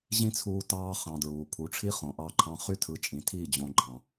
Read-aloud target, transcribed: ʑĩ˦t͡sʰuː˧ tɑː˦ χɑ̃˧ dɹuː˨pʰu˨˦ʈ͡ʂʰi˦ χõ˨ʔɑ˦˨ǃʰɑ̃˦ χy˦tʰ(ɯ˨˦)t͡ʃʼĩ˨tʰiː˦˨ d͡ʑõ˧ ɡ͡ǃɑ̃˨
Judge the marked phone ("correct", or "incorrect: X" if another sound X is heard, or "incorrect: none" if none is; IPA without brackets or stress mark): correct